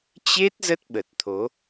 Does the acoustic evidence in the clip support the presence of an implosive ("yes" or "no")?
yes